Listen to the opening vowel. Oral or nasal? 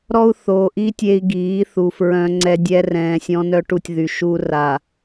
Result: oral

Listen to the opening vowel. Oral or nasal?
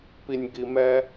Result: oral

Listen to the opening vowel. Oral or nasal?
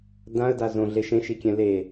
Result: nasal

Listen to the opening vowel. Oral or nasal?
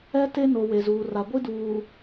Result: oral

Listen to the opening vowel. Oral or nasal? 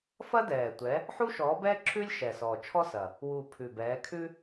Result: oral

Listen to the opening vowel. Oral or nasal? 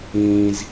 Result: nasal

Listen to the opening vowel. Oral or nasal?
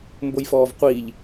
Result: oral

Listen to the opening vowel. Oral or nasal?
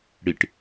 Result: oral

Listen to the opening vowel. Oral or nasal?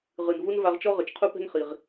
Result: oral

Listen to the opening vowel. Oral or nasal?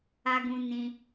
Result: oral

